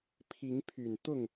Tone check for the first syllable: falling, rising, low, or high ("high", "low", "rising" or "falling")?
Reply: rising